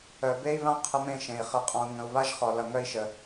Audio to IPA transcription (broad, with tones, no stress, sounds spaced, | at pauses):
œ˨ b e˦ i̯ β ã˦ qʰ ə˧ m ẽ˦˨ ʃ ẽ˨ i̯ χ ə˨ qʼ ɔ̃˨ u̯ ŋ ə̃˨ u̯ β a˦ ʒ χ ɔ˨ l ʌ˨ ŋ œ˧ i̯ ʃ ə˨